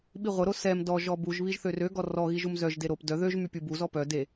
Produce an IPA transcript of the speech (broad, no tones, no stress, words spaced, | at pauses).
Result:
ɓiʁʷəɾo sɛm dɔʒɔ buʒβiʒ θørøɡɔ rɔ ɣiʒumzœʒde ɾop dœ ðøʒ mypʲubuzɔ pœ de